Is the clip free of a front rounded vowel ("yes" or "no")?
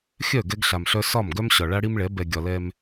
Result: no